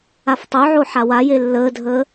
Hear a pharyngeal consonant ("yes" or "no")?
yes